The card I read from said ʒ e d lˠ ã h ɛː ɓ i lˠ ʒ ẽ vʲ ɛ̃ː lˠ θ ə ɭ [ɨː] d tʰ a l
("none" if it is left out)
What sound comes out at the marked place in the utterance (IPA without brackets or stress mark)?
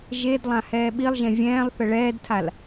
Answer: ɛː